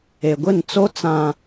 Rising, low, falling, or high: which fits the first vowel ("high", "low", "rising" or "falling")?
low